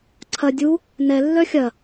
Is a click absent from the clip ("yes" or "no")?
no